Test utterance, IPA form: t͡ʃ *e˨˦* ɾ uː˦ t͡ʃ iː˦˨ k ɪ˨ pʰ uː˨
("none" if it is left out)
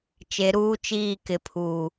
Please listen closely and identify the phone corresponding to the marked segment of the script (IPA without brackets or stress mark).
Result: e˨˦